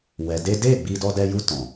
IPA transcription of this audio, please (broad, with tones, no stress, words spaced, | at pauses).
wɛ˨ de˦ de˦˨ ɡ͡bi˧ dɔ˧dɛ˧ju˧ tɔ̃˨